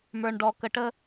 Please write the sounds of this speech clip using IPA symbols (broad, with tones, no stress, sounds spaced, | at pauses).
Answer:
m ə˞˧ ɳ ɖ ɔ˧ k ə˧ ʈ ə˥